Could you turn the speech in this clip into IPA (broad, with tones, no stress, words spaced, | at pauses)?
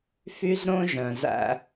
fy˦zɾõ˦ʒœ̃˨zæ̰˦